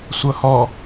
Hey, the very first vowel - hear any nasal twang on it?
no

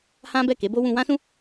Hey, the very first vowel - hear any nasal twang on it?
yes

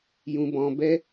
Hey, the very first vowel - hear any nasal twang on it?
yes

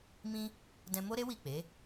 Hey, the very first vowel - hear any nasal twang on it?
yes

